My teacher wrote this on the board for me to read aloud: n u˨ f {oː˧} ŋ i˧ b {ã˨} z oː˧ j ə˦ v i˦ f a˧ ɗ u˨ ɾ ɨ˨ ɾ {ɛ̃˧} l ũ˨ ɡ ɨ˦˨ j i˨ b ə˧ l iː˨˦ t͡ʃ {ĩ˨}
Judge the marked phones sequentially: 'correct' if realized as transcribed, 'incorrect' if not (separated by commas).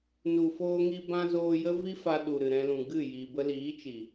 correct, incorrect, correct, incorrect